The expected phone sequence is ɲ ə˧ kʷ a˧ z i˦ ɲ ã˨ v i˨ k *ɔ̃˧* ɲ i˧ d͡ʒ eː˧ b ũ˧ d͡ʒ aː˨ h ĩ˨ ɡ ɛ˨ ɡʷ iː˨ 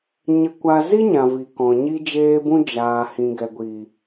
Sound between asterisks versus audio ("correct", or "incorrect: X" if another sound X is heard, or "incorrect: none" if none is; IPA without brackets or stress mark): incorrect: ɔ̃˨